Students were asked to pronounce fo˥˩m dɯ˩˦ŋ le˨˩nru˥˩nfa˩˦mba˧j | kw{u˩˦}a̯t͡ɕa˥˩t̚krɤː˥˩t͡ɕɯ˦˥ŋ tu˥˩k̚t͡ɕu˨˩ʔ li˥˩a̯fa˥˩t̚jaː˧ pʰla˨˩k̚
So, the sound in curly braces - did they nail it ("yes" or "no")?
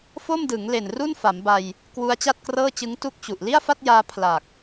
no